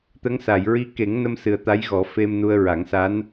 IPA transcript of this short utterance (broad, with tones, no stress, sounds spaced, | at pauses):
t̪ ə˧˥ ŋ s a˨˩˨ j ɹ i˧˥ k e˨˩˦ ŋ n ə˧ m s ɨ˨˩ ə̯ t̪ a˧˥ j ɣ ɔ˨˩˦ f e˧ m n u˧ ə̯ ɹ a˨˩˦ ŋ s a˧˥ n